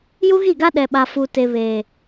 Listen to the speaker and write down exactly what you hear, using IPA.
j u˦ ɣ i˦˨ ɡ a˦ ɗ ɛ˨ ɓ a˨ f u˨ t e˨ β eː˨

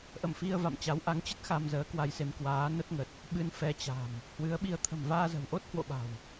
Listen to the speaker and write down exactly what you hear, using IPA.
ʔ ə̰˧˨ m f i˧ ə̯ v a̰˧˨ m t͡ɕ a˨˦ w ʔ a˨˦ ŋ t͡ɕ ə˦˥ t̚ x a˧ m z əː˨˦ k w a˧ j s e˧ m k w aː˨˦ n ə˦˥ t̚ ŋ ə˨˩ t̚ | ɓ ɨ˧ n f ɛ˧ t͡ɕ a̤˨˩ m | h w ɨ˨˦ ə̯ ɓ i˧ ə̯ t̪ʰ ə̤˨˩ m v aː˧ z ə̤˨˩ w ʔ o˦˥ t̚ h w o̰˧˨ ɓ a̤˨˩ w

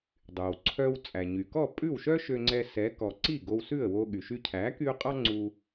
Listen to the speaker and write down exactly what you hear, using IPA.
dˤ y˩ w ǀʰ œ˧ w t͡sʼ æ˩ ɲ y˩ k ɔ˥˩ pʼ ʉ˥˩ w ʃ œ˥ ʃ ø˧ ŋ͡ǀ ɛ˧ s ɛ˩˥ k ɔ˩ ǀ i˥˩ ɡ o˧ w s ʉ˥˩ ə̯ w o˧ ɠ y˩ ʃ y˧ cʰ æ˩˥ k y˧ ʊ̯ qʼ ɑ˥ ŋ͡ǀ u˧

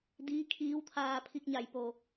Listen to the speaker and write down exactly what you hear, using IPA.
d iː˧˥ kʰ iː˧˥ w t̪ʰ aː˧ pʰ i˧ k̚ ɲ a˧˩ j p o˧˩

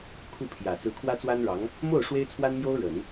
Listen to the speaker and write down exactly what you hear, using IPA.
kʰ u˥˩ pʰ j ä˨˩ t͡s ɹ̩˧˥ kʰ w ä˥ t͡s w a˥ n ɻ ɑ˧˥ ŋ | m o˥˩ ʊ̯ ʂ w e˥ ɪ̯ t͡sʰ w a˥ n m j o˥ ʊ̯ ɻ ə˨˩˦ n

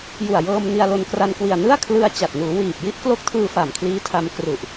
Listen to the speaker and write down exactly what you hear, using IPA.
j u˨˩ a̯ j ɤː˧ m n i˧ a̯ l o˧ n k r a˧ n k w i˨˩ a̯ n ɯ˥˩ a̯ kʰ l ɯ˧ a̯ t͡ɕ a˨˩ t̚ n uː˩˦ w iː˨˩ p̚ j i˦˥ ʔ k l o˦˥ k̚ tʰ ɯː˧ f a˨˩ m kʰ l iː˦˥ tʰ a˧ m k r u˨˩ ʔ

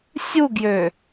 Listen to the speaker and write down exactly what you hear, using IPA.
sʲ u ɡ j ø

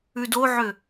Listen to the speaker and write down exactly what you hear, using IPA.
ʉ d o ʕ ø

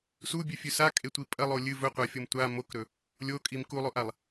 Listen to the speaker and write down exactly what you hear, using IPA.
s u bʲ ʉ fʲ ʉ s a kʼ e tʷ i pʼ ɐ lˠ o lʲ ɨ v ɵ qʷ a fʲ o m tʷ a m o k ɾ ɵ | lʲ o kʼ i m k u lˠ o ʔ a lˠ

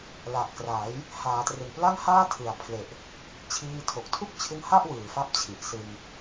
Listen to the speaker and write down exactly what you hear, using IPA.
l a˨˩ ʔ k r a˩˦ j | h aː˩˦ t r ɯ˨˩ ŋ p l a˥˩ ŋ h aː˥˩ tʰ ɯ˨˩ a̯ pʰ l e˨˩ ʔ | t͡ɕʰ iː˧ tʰ o˨˩ k̚ tʰ u˥˩ k̚ t͡ɕʰ ɯ˦˥ ŋ h a˥˩ ʔ w ɯː˨˩ f a˥˩ p̚ t͡ɕʰ i˨˩ ʔ s ɯ˧ ŋ

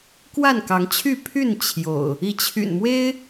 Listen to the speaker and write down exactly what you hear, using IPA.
k w a˥˨ n k ɑ˨˦ ŋ t͡ɕʰ y˥˨ pʰ y˥˨ n t͡ɕʰ j o̰˨˩ ʊ̯ | i˨˦ t͡ɕʰ y̰˨˩ n m w e˦ ɪ̯

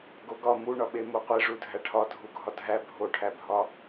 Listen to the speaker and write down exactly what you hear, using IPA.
ɡ o ɡ ɒ m u ɳ ɒ ɓ e m o qʷ e ʐ u dʱ æ ʈʰ ɒ dʱ u ɡʱ ɒ dʱ æ bʱ o ʈʰ æ bʱ ɒ

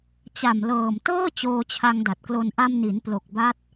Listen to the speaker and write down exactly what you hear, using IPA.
t͡ɕ a˨˩ m l ɤː˨˩ m t ɤː˥˩ t͡ɕ oː˧ t͡ɕʰ a˧ ŋ d a˨˩ t̚ k l o˧ n ʔ a˧ m n i˩˦ n p l o˨˩ k̚ b a˦˥ t̚

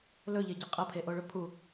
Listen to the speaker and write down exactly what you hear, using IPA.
l ɵ ʎ e ɟ ɐ qʼ ɐ pʰ e ʔ o ɭ ɵ pʰ u

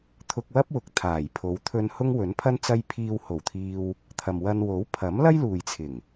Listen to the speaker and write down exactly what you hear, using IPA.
t̪ʰ ʊ˧ k̚ w ɐ˥ p̚ w ʊ˨ k̚ t̪ʰ aː˨˩ j pʰ o˨˧ w t̪ʰ ɵ˧ n h ʊ˥ ŋ w ɵ˨˥ n pʰ ɐ˥ n t͡s ɐ˥ j pʰ iː˧ w h o˨˩ w t̪ʰ iː˧ w | t̪ʰ ɐ˨ m w ɐ˧ n w o˨˥ w pʰ ɐ˨˥ m l ɐ˥ j l uː˨ j t͡sʰ ɪ˨˩ ŋ

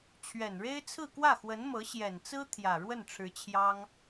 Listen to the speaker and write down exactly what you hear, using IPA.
t͡ɕʰ ɥ ɛ˨˩ n ɻ e˥ ɪ̯ t͡sʰ ɹ̩˥˧ k w ä˥˩ x w ə˧˥ n m ɤ˧˥ ɕ j ɛ˨˩ n t͡s ɹ̩˥ t̪ʰ j ä˨˩ ɻ w ə˥˩ n ʈ͡ʂʰ ɻ̩˧˥ t͡ɕʰ j ɑ˥ ŋ

